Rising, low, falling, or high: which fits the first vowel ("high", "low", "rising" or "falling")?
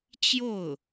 falling